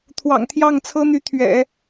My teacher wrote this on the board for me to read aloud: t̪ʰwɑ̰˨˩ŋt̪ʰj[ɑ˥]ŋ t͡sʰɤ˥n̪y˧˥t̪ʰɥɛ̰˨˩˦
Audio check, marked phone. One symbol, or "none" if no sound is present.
ɑ˥˩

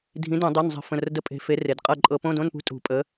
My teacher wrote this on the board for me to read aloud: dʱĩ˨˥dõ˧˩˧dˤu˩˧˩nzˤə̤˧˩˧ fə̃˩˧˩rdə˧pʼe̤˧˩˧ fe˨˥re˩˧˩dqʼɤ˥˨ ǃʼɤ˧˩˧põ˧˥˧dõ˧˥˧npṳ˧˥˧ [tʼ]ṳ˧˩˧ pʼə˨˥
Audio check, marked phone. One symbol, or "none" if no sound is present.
tʼ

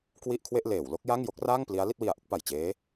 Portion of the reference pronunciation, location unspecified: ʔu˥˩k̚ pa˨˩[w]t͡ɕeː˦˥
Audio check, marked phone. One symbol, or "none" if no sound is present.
j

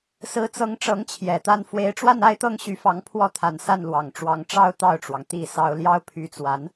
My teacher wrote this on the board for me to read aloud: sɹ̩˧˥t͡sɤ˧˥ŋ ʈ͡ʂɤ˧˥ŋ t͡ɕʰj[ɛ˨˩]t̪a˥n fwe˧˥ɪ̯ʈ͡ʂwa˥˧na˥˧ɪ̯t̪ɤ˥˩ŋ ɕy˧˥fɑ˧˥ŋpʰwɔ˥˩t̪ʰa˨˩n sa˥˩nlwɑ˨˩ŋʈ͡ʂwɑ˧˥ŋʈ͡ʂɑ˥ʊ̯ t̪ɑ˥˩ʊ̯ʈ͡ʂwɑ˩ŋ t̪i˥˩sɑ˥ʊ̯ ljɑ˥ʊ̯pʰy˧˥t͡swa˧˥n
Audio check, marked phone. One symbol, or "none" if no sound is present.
ɛ˨˩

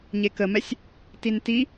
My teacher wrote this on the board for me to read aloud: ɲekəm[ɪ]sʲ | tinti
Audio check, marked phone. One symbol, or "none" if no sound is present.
ɛ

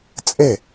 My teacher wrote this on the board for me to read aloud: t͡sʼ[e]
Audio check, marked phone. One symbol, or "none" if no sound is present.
e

